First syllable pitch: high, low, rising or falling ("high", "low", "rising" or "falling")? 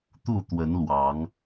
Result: falling